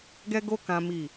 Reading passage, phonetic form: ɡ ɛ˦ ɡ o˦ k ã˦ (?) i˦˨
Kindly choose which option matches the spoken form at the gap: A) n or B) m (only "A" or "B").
B